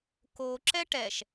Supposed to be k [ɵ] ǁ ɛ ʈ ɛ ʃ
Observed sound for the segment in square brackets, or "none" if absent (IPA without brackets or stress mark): o